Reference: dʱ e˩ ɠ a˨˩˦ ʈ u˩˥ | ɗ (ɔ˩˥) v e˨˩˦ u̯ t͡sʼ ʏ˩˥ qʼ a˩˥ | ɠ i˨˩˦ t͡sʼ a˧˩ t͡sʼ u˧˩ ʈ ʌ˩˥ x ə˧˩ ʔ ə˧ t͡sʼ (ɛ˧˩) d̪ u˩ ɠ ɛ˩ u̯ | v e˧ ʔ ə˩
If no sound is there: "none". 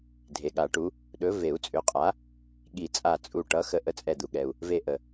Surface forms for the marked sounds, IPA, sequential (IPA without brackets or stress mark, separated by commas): ɵ˩˥, ɛ˧˩